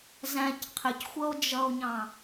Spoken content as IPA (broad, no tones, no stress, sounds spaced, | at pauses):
z æ̃ c qʰ ɪ c xʷ ʌ o̯ d͡ʒ ʌ o̯ ɲ ɑ̃